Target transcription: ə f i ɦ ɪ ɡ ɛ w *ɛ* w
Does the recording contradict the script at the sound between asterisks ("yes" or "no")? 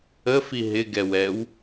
no